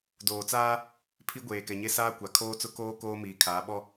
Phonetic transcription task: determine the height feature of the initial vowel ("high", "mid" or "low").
mid